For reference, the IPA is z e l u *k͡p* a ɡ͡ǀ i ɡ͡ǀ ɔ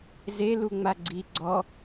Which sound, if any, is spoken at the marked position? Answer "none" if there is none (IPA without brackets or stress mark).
ŋ͡m